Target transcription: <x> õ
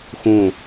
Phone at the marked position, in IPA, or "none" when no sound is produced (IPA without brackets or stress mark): x